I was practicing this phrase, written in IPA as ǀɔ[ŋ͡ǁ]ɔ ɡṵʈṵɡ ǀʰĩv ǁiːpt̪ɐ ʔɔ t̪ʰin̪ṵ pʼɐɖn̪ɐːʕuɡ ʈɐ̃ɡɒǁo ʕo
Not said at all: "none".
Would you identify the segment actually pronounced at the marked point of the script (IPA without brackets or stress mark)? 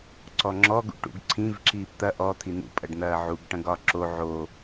ŋ͡ǁ